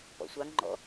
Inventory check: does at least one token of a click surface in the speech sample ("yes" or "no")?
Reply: yes